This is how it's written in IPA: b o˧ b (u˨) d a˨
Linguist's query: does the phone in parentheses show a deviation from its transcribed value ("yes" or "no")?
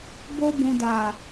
yes